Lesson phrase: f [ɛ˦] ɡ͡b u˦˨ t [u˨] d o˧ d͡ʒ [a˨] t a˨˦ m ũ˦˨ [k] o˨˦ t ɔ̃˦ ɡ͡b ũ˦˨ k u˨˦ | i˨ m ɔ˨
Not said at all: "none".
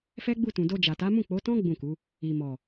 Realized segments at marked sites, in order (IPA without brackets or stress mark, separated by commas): ɛ˦, ũ˨, a˨, k͡p